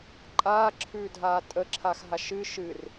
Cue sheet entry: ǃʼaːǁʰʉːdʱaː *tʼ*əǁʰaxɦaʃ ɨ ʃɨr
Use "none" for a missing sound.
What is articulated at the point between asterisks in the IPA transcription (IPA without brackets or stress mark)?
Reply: tʼ